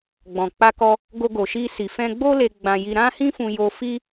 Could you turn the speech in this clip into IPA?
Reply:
ɡ͡b ɔ̃˨ k͡p a˧ k ɔ˧ | ɡ o˧ ɡ o˨ ʃ i˧ s i˨ f ɛ̃˧ ɡ͡b o˦ l e˧ ɡ͡b ã˧ j i˧ ɾ ã˦ h ĩ˦ f ũ˧ j o˧ f i˦

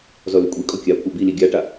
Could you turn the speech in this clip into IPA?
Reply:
z ɔ l ʏ kʷʼ i kʼ ɔ kʲ a kʷʰ a b i l i ɡʲ a ʈ a

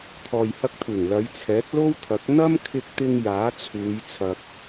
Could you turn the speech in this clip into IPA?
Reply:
t̪ʰ ɔː˨ j h ɐ˧ k̚ t̪ʰ uː˨˩ ŋ l ɐ˨˧ j t͡sʰ ɛː˨˥ k̚ l o˥ w t̪ʰ ɐ˨˥ k̚ n̪ ɐ˥ m kʰ ɪ˧ k̚ t̪ ɪ˧ ŋ j aː˨˥ t͡sʰ uː˨˧ j t͡sʰ ɐ˧ k̚

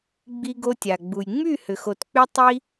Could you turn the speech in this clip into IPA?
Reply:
ɡ͡b i˧ ɡ o˧ tʲ a˩ ɡ͡b u˩ j ŋ͡m y˥˩ h ʏ˩ x o˩ t k͡p y˧ tˤ i˧

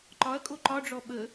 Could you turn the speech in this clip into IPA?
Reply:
ǃ ɒ ɐ̯ kʼ o ǃ ɒ ɖ͡ʐ ɔ ɓ ə

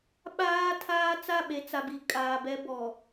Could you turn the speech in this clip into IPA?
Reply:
ɓ aː˦ tʰ aː˦ t͡s a˦˨ ɓ e˨ t͡s a˨ b i˨ kʼ aː˨ b ɛ˦ b ɔ˨

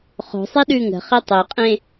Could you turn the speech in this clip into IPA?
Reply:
χ o̤ sˤ e ɗ ʉː ŋ ə̤ χ i tˤ e qʼ ẽ

